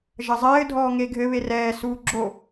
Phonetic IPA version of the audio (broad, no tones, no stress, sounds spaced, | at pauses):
ʒ ɐ zˤ ɘː dʱ ɔː ŋ e ɡʱ ɘ β e r ɛː s uː ɡ͡ǁ o